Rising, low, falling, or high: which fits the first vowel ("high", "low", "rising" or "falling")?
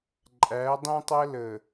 rising